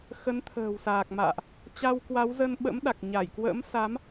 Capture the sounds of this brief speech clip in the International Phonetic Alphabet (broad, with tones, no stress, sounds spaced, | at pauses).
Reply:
x ə˨˦ n t̪ʰ ə̤ː˨˩ w s aː˨˩ k̚ m a̰ː˧˨ ʔ | t͡ɕ a˧ w k w a˨˦ w z ə˧ n ɓ ə̰˧˥ m ɗ a˨˩ k̚ ɲ a˧˩ j k w ə̰ː˧˥ m s a˨˦ m